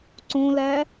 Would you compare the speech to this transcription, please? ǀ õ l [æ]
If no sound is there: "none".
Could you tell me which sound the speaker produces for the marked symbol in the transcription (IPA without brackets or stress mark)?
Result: æ